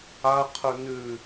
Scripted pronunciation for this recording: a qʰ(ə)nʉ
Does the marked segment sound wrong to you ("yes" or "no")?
no